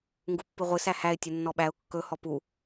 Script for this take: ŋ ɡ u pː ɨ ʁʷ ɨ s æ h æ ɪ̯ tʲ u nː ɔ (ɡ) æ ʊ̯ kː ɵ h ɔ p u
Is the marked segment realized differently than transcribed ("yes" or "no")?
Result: yes